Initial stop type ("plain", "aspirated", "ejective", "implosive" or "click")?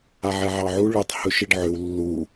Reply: plain